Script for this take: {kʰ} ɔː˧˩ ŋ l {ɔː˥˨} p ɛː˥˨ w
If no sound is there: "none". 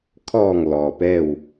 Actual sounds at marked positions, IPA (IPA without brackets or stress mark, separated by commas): kʰ, ɔː˩